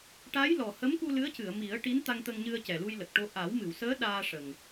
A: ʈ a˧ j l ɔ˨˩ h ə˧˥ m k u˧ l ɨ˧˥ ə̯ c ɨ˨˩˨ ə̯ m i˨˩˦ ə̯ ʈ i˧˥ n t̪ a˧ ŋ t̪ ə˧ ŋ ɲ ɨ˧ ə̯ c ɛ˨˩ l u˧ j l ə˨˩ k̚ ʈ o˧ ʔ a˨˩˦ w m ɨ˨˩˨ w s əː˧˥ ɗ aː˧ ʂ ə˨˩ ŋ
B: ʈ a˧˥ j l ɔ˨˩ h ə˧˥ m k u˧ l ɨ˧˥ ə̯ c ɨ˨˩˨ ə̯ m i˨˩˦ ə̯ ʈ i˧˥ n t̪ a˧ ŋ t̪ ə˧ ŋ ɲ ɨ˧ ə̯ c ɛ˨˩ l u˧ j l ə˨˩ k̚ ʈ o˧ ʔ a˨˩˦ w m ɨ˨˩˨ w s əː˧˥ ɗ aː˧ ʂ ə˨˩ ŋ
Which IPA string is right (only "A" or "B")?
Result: B